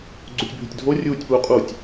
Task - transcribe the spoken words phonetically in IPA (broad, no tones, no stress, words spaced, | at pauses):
ɡ͡ǀutʲbʱʏtʲdʱo rʲuːtʲpwuqʼutʲ